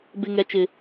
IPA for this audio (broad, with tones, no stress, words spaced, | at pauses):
bɪ˦ŋɛ˦ t͡ʃɪ˦